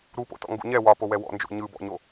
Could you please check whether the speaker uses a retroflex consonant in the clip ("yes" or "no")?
no